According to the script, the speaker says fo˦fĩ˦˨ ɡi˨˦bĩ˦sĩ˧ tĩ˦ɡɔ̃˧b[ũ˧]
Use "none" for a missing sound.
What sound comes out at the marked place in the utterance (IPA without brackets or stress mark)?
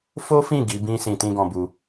u˧